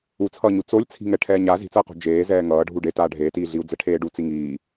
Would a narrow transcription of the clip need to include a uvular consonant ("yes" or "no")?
yes